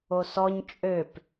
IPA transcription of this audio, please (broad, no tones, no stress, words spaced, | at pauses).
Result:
osɔɲ t͡ʃʼøp